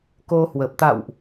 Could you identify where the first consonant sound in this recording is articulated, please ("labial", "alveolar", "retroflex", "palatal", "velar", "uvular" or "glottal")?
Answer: velar